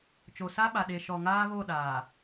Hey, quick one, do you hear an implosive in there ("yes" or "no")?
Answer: yes